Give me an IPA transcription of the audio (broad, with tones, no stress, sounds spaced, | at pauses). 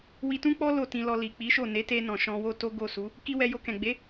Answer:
w i˧ t ũ˦ k͡p ɔ˦ l o˦˨ t ĩ˧ l ɔ˧ l i˨ k͡p i˨˦ ʃ o˦˨ n e˨˦ t e˧ n ɔ̃˨ ʃ ɔ̃˧ w o˦ t o˦ ɡ o˦˨ s u˨˦ | k i˦ w ɛ˧ j o˧ k ɛ̃˨ ɡ͡b e˨˦